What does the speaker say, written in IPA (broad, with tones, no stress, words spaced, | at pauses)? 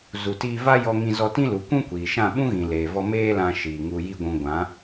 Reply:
zu˨tiː˧ va˦ jɔ˧ŋĩ˧zɔ˧tĩ˦ lu˨˦ kʷũ˦kʷiː˨ʃã˦˨ ɓũ˦ɣĩ˨leː˨vɔ˧ meː˦lã˧ʃiː˨ ŋu˧ji˦ɡʷũ˧ ɡʷã˨˦